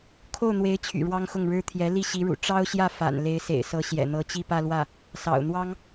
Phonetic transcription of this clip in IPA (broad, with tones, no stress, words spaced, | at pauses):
kʰo˥˩ʊ̯n̪we˧˥ɪ̯t͡ɕʰy̰˨˩ ɻwɑ˥ŋxʊ˥˩ŋɻɻ̩˥ t̪ʰjɛ˧˥ li˥˩ɕi˧˥ɻṵ˨˩ ʈ͡ʂɑ˥ʊ̯ɕjä˥˩ fa̰˨˩n le˧˥ɪ̯sḛ˨˩ɪ̯sɤ˧˥ ɕjɛ̰˨˩n̪ɤ˧˥ t͡ɕi˥˧pä˥˧lwä˥˩ | sɑ̰˨˩ʊ̯n̪wɑ˥ŋ